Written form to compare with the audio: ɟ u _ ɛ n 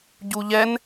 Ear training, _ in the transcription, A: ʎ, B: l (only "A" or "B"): A